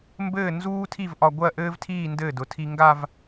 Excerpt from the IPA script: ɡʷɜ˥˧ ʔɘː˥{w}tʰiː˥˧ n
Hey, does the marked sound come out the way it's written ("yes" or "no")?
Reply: no